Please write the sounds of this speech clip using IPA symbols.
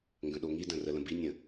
ŋɡə̃ɗoŋidə̃ rələ̃binʲə̃

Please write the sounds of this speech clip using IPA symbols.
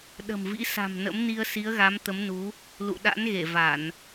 ɗə̤˨˩m vḭ˧˥sa̤˨˩m nə̰˧˥mni˧ə̯si˨˦ə̯ɣa˨˦m t̪ə˨˦mnu˨˦ | lṵ˧˨ɗa̰˧˥nɣe˧˩ va˧˩˨n

